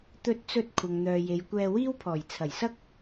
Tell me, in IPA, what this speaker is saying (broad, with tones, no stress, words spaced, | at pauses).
t̪ɵ˧t̚ t͡sɵ˧t̚ kʷʰɐ˨ŋn̪œː˨je˨j kʷɛː˧wiː˥wpʰɔː˨˩j t͡sʰɐ˨˩jsɐ˥k̚